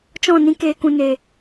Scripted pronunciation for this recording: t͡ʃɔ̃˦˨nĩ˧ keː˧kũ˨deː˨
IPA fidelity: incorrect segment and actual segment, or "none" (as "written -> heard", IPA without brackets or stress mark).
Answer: d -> n